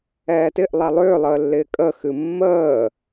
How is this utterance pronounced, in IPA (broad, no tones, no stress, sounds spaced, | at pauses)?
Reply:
ɛː t ɪ ʔ lˠ a lˠ ʏː lˠ əː lː ɪː kʼ ə x ɨ mː əː